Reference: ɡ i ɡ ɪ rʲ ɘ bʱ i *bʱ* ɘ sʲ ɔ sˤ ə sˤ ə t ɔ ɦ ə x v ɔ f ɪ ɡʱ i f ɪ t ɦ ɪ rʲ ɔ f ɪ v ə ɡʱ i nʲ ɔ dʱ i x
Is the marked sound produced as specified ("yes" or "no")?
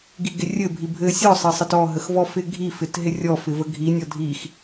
yes